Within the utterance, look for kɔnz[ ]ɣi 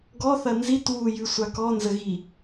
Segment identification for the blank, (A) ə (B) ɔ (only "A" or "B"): A